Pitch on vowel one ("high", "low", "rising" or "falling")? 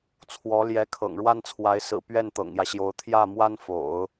rising